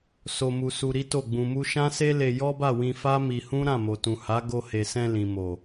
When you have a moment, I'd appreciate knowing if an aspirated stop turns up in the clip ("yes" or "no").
no